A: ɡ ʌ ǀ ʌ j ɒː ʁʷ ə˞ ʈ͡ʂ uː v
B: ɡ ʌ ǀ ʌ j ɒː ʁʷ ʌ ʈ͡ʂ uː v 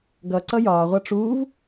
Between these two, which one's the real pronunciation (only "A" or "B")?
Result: B